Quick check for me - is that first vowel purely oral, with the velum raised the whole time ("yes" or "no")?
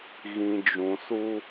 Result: no